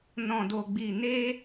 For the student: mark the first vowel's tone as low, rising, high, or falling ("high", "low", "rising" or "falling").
low